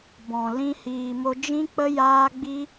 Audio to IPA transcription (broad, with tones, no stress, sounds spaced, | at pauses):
b ɔ̃˨ l ĩ˦ h iː˧ m o˦ d͡ʒ ĩ˦ k͡p ə˦ j aː˦ ɡ͡b i˦